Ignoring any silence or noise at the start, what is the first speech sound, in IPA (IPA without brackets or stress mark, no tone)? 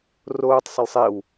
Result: r